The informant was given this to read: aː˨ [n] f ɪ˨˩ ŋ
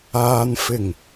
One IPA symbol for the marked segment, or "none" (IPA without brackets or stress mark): n